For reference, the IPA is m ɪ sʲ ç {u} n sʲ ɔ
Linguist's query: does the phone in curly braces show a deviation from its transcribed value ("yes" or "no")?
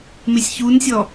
no